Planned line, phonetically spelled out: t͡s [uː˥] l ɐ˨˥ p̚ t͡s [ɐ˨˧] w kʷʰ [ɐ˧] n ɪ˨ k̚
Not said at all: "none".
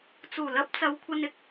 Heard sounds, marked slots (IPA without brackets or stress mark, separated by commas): uː˨˩, ɐ˨˧, ɐ˧